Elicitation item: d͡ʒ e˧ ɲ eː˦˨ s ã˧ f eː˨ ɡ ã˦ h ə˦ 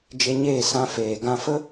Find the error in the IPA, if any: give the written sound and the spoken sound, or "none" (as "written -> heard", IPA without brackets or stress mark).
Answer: h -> f